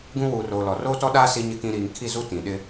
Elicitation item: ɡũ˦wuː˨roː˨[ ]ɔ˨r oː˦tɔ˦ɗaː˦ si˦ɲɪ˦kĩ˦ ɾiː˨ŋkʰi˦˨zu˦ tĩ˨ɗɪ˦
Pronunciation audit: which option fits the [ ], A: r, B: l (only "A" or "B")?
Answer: B